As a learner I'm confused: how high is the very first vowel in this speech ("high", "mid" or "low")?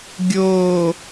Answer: mid